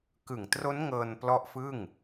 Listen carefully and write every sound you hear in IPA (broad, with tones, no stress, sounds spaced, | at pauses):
k ɯ˨˩ ŋ t r o˦˥ n ŋ ɤː˧ n p l ɔ˦˥ ʔ f ɯ˥˩ ŋ